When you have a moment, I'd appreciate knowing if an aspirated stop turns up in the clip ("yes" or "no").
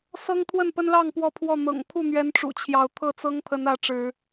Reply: yes